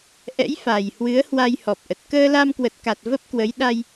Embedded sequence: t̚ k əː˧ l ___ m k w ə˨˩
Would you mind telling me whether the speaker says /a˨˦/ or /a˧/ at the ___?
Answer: a˧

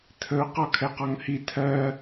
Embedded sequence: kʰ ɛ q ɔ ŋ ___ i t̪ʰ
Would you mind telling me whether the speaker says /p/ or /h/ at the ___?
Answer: h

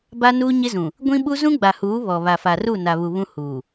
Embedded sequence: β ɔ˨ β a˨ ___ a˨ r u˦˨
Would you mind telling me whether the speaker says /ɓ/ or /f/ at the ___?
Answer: f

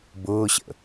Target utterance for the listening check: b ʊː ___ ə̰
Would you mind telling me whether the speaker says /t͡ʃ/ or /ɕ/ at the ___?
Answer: ɕ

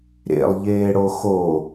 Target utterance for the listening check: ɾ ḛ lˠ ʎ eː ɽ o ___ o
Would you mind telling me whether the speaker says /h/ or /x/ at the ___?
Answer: x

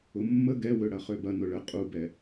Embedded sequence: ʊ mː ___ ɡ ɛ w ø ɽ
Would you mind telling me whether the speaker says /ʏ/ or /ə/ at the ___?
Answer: ə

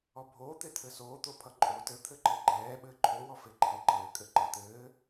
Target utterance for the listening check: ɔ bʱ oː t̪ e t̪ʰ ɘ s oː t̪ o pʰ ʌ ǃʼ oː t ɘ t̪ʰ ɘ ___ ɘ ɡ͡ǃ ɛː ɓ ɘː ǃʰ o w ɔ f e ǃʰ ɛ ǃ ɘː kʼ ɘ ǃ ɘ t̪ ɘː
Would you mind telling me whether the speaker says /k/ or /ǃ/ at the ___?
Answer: ǃ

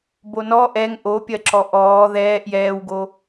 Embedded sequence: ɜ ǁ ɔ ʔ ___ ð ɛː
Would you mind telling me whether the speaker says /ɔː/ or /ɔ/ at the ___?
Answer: ɔː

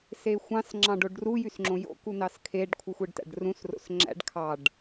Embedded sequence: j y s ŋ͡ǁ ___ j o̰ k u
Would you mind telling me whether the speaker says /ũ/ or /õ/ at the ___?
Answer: õ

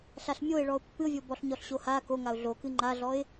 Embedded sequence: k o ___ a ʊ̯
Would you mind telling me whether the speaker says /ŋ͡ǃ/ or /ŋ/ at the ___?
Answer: ŋ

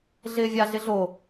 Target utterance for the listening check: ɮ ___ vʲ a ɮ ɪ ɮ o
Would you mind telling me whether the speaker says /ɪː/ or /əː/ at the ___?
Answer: ɪː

